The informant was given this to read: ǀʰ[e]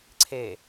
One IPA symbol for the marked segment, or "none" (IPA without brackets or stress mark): e